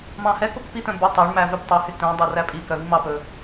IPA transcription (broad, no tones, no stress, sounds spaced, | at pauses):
m ɑ̃ h ɛ k o k p i t̪ œ̃ b y tˤ æ ɳ m æ v ø b tˤ ø h y t œ̃ dˤ ɛ r æ pʼ i k œ v i m ɑ p ɵ